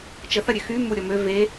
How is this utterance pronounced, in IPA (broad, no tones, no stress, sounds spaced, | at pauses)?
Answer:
t͡ʃ ə θ ɐ ɾʲ ø x y m u ɾʲ ɔ m ø v e